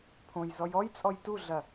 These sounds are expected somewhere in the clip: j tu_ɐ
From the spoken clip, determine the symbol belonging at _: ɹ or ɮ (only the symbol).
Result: ɮ